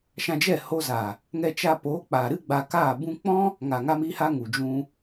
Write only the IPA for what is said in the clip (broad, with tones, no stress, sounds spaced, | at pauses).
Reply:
ʃ ã˧ d͡ʒ ɛ˦˨ h o˧ z a˨ | ŋ ɛ˧ t͡ʃ a˧ p oː˨˦ k͡p aː˨ ɾ ɨ˦ ɡ͡b a˧ k aː˦˨ b ũ˦ k͡p ɔ̃˦ | ŋ a˨ ŋ a˧ m iː˧ h a˧ ŋ u˨ d͡ʒ ũ˧